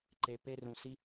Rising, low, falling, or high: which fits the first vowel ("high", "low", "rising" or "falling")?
low